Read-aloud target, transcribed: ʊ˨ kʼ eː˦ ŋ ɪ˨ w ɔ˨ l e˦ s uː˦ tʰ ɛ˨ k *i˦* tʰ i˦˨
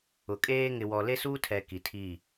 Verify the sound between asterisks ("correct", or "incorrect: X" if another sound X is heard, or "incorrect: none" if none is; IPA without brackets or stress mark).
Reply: incorrect: i˨